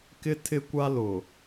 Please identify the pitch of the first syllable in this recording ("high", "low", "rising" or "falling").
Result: high